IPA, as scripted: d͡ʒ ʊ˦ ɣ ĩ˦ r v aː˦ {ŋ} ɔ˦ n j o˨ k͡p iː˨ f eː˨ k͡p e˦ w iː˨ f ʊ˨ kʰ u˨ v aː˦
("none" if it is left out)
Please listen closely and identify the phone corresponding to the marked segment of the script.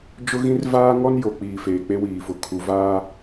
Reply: ŋ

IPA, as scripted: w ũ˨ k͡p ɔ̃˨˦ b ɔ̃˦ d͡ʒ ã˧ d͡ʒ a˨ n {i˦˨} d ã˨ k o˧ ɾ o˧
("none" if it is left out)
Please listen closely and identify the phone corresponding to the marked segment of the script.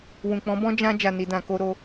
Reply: i˨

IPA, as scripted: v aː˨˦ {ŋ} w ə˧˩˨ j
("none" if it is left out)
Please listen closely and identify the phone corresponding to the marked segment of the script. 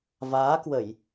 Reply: k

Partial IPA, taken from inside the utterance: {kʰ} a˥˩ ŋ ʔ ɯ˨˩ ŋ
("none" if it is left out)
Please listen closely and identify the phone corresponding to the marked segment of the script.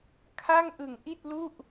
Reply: kʰ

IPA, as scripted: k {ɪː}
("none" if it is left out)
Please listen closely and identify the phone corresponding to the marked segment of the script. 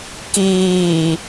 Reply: iː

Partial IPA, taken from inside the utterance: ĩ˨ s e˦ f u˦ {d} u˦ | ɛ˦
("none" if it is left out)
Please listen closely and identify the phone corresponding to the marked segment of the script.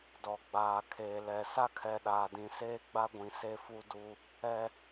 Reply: d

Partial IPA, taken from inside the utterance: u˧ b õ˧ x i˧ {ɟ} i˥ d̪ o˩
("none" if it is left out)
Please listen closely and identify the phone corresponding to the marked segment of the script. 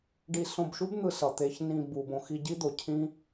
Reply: ɟ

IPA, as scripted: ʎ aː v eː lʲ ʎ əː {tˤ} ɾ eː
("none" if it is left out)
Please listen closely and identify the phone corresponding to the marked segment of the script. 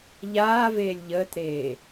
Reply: t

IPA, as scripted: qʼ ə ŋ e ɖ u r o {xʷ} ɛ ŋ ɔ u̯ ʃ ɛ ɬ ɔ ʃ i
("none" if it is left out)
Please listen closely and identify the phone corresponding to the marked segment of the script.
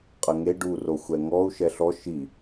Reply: xʷ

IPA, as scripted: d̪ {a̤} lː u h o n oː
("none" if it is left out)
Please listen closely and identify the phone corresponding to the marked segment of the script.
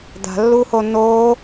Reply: a̤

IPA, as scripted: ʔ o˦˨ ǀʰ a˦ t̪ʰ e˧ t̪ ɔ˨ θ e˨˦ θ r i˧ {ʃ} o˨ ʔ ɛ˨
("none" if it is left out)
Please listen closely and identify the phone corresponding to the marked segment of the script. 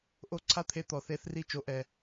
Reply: t͡ʃ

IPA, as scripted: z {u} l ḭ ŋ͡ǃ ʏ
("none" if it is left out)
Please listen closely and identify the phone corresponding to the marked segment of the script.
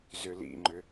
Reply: ʏ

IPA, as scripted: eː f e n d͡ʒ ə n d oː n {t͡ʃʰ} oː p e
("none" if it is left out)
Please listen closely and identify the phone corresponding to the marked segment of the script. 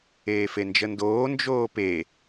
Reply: d͡ʒ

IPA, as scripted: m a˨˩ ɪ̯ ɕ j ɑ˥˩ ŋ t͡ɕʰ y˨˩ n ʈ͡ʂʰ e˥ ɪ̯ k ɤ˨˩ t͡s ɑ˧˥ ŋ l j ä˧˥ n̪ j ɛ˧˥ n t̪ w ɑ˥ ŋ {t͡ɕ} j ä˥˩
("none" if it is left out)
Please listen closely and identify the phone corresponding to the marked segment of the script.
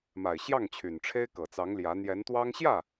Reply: ɕ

